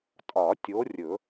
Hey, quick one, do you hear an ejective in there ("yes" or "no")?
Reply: yes